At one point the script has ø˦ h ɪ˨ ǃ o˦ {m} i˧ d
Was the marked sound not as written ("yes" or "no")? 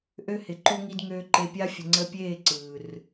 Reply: yes